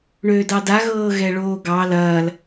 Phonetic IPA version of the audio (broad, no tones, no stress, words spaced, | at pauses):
ɳøːdɑda ɣɤːɣɛɭoːɡɑ lɐːl